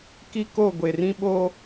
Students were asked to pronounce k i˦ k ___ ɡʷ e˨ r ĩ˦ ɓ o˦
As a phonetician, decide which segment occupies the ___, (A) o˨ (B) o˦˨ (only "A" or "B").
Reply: B